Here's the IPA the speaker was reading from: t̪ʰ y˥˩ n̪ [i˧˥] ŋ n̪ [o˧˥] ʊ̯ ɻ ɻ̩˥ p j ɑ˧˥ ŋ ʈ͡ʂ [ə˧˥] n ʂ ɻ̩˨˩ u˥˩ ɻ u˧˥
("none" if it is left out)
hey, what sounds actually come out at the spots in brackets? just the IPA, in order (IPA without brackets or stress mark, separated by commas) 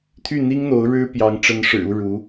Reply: i˥, o˧˥, ə˧˥